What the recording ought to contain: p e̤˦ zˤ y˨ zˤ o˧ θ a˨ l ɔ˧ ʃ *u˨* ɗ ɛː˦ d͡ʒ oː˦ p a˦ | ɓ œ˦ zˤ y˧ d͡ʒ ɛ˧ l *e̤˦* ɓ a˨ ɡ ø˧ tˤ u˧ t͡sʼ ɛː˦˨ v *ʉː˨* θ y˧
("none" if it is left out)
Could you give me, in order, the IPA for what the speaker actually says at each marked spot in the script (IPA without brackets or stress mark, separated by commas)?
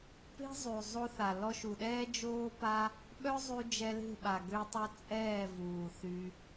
u˨, e̤˦˨, uː˨